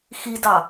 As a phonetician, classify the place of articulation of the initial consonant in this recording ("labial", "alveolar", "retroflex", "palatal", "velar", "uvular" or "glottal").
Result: velar